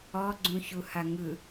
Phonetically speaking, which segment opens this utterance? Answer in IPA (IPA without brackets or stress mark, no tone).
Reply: ɔ